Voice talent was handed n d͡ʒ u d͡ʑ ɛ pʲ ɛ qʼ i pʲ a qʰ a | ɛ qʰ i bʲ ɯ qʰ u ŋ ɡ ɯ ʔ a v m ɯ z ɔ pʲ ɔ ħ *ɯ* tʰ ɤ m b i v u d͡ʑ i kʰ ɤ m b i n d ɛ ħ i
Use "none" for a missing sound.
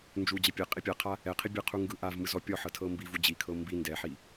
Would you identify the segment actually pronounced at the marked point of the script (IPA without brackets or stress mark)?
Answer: ɤ